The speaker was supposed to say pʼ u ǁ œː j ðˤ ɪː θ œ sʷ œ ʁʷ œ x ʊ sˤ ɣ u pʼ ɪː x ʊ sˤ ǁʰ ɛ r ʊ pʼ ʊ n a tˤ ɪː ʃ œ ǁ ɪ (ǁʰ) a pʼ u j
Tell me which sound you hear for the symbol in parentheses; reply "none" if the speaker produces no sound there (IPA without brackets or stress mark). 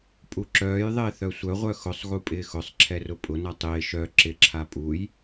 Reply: ǁʰ